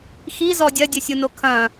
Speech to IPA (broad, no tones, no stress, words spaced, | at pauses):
xizɔ dʲɐdʲɘsʲuno kʰɐ̃